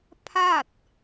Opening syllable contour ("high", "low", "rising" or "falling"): falling